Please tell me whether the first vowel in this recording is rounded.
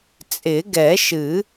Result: no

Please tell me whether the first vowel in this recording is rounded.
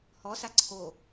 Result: yes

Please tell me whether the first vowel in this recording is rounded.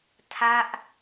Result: no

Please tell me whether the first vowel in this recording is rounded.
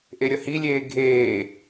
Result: no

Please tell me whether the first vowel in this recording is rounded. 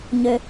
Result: yes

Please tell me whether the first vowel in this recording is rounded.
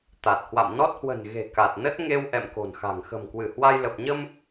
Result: no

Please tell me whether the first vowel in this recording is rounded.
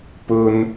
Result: yes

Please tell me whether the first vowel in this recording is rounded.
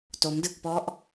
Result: yes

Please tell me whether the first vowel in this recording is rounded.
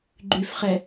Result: yes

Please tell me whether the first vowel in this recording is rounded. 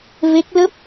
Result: no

